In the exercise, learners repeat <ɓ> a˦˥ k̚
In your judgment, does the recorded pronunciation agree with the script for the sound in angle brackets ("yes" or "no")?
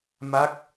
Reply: no